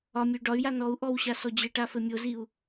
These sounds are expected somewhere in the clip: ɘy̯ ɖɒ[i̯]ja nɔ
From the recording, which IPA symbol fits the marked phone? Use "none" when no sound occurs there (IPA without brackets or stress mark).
y̯